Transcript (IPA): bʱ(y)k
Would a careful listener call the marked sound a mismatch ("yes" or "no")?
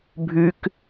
no